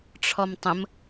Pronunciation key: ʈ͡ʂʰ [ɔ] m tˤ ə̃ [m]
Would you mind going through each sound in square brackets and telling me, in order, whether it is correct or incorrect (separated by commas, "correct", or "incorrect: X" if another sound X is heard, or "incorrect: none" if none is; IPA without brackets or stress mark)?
correct, correct